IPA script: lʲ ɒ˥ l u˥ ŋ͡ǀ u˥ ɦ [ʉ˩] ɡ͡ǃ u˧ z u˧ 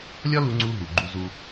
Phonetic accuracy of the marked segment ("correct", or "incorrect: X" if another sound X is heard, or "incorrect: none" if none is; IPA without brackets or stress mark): incorrect: u˩